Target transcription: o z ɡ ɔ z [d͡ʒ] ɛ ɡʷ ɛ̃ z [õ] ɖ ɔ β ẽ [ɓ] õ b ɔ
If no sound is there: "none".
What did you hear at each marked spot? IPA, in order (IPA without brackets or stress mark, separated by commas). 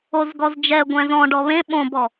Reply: d͡ʒ, ɔ̃, ɓ